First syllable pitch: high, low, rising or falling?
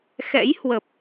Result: rising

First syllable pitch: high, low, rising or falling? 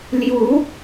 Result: rising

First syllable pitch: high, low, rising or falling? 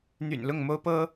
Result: low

